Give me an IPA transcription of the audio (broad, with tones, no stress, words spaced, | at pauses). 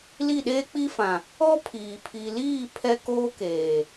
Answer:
li˦˨ɗeː˦k͡pi˦fã˨ | ɔ˦pʰiː˨ pʰi˨liː˦˨ pʰɛ˦koː˦keː˨